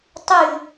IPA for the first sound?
tˤ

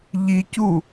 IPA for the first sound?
ʎ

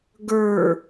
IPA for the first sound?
ɡ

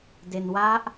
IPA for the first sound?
d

